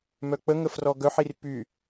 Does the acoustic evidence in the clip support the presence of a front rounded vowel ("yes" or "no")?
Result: yes